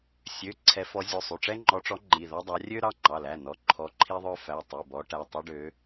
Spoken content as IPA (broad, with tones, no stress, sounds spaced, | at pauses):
sʲ ø˩˧˩ ǀʰ ɛ˨˦ f ɔ˨˦ zʲ o˩˧˩ sˤ y˩˧˩ ʈ͡ʂ ɛ˦ ŋ͡ǃ ɔ˨˦ ʈ͡ʂ ɔ˨˦ ŋ͡ǃ i˩˧˩ ð ɔ˦ dˤ ɑ˨˦ rʲ ø˦ ɾ ɑ˩˧˩ ŋ͡ǃ ɑ˩˧˩ l æ˩˧˩ n ɔ˩˧˩ ǃʰ ɔ˨˦ ǃʰ i˦ ðˤ œ˦ f æ˩˧˩ tˤ y˩˧˩ b ɔ˨˦ ʈ æ˩˧˩ tˤ o˦ ɖ ø˨˦